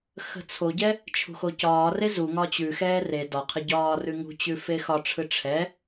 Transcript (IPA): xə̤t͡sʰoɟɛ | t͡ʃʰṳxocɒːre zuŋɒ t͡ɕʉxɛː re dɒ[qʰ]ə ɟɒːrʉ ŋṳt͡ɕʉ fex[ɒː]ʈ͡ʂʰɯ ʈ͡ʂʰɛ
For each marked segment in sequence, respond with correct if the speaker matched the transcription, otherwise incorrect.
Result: correct, incorrect

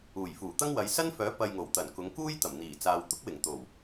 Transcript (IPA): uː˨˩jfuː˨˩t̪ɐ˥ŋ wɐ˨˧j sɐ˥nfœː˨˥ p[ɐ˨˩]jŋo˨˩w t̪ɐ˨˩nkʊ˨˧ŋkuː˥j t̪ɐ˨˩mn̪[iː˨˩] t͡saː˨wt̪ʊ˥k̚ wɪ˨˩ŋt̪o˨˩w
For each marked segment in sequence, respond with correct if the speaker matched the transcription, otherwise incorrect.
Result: incorrect, correct

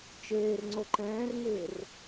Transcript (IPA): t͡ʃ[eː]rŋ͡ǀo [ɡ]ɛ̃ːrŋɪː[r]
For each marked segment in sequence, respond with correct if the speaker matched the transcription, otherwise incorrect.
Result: correct, incorrect, correct

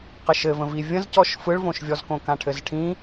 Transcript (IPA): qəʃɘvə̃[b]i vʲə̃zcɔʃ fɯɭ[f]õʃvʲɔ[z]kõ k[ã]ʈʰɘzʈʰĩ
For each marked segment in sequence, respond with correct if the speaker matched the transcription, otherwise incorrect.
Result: incorrect, incorrect, correct, correct

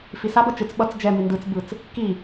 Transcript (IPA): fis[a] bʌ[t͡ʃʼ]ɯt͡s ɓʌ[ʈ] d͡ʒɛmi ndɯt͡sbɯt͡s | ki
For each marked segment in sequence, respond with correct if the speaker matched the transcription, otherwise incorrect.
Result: correct, incorrect, incorrect

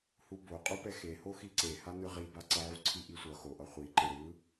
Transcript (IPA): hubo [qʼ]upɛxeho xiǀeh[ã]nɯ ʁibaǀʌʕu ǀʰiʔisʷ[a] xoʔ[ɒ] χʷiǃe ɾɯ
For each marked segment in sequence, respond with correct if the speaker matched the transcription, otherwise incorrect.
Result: correct, incorrect, incorrect, incorrect

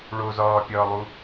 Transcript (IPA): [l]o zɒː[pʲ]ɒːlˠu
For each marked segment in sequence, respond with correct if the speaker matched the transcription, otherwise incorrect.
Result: incorrect, correct

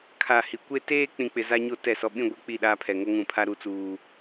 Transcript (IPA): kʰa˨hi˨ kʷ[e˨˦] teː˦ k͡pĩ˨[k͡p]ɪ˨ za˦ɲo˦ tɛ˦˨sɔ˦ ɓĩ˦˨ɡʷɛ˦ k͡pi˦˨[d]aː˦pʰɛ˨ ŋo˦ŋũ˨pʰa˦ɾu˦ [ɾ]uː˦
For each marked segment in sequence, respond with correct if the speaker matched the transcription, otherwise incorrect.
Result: incorrect, correct, incorrect, incorrect

